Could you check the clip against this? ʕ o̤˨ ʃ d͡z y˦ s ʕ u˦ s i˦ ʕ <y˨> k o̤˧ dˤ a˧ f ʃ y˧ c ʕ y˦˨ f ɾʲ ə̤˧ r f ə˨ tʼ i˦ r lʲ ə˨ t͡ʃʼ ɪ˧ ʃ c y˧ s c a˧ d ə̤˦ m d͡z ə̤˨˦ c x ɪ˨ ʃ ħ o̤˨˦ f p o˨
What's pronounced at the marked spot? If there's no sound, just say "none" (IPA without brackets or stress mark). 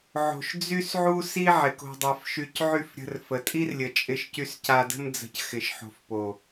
ɪ˨